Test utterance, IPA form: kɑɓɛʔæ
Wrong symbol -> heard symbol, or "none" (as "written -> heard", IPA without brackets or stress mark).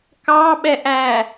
none